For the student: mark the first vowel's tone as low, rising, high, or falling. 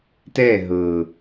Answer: falling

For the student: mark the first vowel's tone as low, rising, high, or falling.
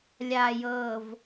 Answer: low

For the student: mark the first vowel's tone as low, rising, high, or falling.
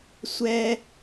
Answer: high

